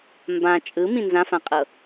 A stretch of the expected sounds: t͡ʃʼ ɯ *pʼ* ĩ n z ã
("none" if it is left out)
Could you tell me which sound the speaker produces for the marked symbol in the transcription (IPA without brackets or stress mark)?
m